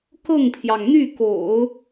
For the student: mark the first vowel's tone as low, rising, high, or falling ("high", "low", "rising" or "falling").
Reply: falling